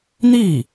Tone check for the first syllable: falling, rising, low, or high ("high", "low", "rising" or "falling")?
falling